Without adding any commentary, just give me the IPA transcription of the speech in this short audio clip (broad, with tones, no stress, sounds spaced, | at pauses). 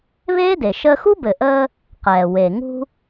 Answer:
β eː˥ d e˩ ʃ əː˧ x u˥ b ɘ˩ ʔ əː˧ | q ɛː˩ w e˩ ŋ ṳ˧